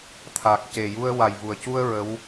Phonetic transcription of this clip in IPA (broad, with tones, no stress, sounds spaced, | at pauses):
t̪ʰ a˨˩ k̚ c e˨˩ j u˧ ə̯ w a˨˩ j v u˨˩ ə̯ c u˧ ə̯ ɹ ə˧˥ w